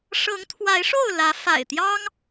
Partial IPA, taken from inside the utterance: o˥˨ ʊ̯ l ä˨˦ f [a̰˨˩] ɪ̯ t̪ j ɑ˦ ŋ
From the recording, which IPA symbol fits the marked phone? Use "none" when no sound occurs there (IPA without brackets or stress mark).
a̰˨˩